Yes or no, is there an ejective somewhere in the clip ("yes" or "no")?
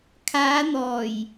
no